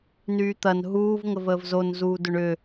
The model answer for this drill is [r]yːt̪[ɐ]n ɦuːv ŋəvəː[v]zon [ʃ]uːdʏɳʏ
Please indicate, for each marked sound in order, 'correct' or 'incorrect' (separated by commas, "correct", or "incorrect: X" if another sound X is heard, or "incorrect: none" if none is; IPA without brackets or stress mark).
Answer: incorrect: n, correct, correct, incorrect: z